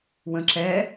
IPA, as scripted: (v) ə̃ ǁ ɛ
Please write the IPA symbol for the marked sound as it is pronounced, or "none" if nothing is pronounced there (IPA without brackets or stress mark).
w